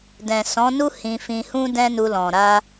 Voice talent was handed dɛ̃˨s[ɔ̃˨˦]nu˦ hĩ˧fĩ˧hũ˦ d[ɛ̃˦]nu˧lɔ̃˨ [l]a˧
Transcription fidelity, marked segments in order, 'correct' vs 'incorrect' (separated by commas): correct, correct, incorrect